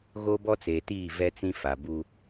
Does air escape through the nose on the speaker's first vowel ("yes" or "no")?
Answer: no